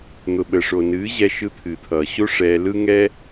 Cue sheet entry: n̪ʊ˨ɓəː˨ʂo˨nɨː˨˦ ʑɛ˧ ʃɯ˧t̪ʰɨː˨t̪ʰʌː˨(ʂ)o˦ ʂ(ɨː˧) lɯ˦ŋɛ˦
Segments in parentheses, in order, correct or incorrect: incorrect: ɕ, incorrect: ɛː˧

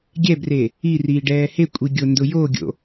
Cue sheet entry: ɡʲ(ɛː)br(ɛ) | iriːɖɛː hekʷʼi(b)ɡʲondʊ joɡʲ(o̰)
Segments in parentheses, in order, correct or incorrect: incorrect: ɛ, incorrect: e, incorrect: none, correct

